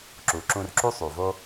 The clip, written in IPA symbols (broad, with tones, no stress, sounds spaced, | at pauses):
ǁ u˩ ǁ ũ˧ r ǁ u˥ sˤ u˩ v o˥